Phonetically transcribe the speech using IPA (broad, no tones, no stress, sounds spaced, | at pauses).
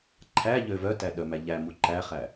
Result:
ǃʰ æ ʎ ø v œ t æ ɗ œ m æ ʎ æ m u ǃ æ χ æ